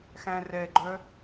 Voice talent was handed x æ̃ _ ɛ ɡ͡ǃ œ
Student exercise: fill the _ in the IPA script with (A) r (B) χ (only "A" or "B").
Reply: A